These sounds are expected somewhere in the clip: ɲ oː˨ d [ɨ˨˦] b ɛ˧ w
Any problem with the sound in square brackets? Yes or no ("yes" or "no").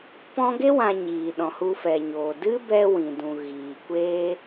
yes